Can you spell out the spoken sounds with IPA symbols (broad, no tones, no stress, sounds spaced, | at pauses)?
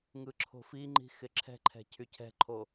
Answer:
ŋ ɯ ǁʰ o̤ f i ŋ͡ǃ i̤ x ɪ ǁʰ ɛ̤ ǃʰ ɛ̤ cʰ y cʰ ɛ̤ ǃʰ o